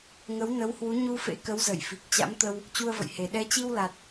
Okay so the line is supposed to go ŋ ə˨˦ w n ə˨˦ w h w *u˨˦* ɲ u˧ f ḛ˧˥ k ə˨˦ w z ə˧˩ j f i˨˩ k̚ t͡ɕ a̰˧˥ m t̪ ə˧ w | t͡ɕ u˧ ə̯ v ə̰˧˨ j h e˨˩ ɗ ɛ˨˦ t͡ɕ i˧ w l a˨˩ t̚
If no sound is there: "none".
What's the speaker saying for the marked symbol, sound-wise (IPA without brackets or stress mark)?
u˨˦